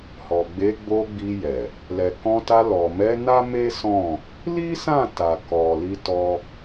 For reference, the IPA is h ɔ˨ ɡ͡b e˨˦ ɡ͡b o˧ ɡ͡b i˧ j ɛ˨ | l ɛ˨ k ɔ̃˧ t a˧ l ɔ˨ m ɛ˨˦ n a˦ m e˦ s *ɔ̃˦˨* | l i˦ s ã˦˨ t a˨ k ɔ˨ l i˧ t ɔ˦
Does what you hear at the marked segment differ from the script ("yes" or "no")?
no